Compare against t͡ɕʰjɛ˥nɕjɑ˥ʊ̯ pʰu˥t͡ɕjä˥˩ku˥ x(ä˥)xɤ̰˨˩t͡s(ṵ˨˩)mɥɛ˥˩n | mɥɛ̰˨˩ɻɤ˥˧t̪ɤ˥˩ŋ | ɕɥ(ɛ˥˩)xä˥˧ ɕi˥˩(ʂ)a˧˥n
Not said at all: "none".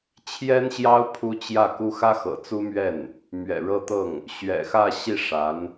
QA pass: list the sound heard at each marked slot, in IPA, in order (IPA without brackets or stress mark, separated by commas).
ä˥, u˥, ɛ̰˨˩, ʂ